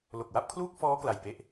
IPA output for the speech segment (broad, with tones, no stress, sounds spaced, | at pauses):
l o˨˩ k̚ w a˥˩ p̚ kʰ l uː˥˩ k̚ f ɔː˦˥ k l a˨˩ j p e˥˩ ʔ